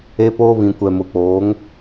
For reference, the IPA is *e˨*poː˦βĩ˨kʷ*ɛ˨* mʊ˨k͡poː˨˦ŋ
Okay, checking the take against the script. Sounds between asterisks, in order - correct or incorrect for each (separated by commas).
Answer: incorrect, correct